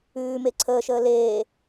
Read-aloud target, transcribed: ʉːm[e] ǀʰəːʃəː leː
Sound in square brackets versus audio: correct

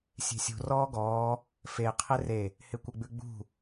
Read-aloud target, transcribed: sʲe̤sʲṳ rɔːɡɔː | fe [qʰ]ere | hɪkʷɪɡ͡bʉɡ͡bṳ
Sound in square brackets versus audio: correct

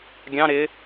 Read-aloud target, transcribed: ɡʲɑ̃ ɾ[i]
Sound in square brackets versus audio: incorrect: ɪ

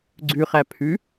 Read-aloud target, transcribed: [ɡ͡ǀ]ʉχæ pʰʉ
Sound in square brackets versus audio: correct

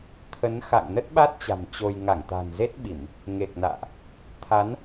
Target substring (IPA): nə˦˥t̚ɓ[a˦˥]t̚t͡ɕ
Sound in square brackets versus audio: correct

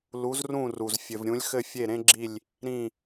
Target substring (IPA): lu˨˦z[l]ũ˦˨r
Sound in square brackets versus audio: incorrect: r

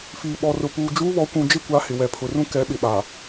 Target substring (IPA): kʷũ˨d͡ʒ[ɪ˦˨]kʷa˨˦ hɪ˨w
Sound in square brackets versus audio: correct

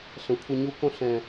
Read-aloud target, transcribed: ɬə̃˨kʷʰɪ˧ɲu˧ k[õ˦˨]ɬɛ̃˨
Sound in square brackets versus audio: incorrect: õ˧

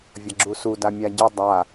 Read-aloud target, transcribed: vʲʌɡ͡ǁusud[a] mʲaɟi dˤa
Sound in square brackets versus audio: correct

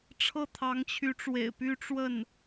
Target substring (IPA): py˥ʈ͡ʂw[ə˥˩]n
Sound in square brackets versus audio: correct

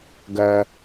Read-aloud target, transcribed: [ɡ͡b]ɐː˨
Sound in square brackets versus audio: incorrect: ɡ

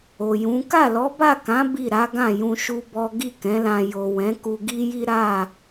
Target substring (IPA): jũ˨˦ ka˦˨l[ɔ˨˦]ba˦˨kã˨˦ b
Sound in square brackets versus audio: correct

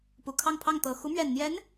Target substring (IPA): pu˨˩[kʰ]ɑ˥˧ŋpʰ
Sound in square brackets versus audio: correct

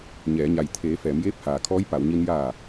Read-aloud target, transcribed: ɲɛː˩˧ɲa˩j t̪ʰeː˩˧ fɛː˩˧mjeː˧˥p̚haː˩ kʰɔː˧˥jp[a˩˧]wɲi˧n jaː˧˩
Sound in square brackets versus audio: correct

